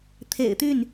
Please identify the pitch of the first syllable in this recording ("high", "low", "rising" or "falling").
low